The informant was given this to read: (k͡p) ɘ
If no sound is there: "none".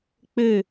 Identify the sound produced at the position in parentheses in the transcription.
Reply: k͡p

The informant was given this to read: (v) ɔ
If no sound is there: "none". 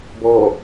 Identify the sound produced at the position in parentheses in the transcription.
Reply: b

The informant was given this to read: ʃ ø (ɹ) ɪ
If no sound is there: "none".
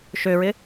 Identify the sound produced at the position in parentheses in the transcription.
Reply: ɹ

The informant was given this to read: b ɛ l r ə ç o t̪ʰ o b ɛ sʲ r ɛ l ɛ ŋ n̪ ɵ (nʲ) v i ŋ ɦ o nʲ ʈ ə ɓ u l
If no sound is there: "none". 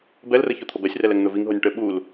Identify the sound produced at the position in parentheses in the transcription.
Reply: none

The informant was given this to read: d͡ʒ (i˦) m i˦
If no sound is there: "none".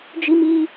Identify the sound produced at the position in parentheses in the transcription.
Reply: i˦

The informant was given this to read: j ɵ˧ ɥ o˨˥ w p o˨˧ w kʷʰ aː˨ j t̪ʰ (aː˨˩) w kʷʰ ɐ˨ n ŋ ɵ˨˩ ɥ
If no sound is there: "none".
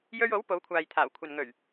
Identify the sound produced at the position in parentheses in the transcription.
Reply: aː˨˩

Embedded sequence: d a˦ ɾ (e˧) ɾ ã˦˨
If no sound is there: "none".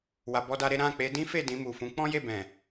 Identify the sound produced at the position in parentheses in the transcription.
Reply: e˦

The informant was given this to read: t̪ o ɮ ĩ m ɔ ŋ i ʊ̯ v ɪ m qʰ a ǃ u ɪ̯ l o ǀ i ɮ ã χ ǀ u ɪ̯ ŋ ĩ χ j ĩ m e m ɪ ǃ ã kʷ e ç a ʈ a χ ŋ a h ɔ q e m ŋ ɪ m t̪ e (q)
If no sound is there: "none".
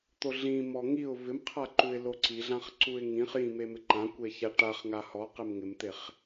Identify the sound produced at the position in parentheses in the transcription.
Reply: χ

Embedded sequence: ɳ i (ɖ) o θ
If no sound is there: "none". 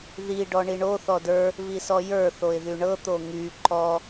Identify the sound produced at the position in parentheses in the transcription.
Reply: ɳ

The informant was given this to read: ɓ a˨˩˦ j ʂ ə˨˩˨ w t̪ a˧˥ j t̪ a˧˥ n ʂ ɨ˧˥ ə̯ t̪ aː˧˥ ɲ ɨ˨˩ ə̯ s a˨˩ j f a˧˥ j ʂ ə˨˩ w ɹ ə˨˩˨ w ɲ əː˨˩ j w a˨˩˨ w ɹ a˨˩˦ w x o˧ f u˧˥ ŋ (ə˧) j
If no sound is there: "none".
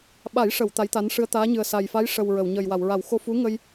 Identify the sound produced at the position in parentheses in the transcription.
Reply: ə˧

